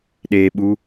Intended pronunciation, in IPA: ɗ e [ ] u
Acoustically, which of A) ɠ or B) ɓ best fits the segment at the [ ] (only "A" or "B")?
B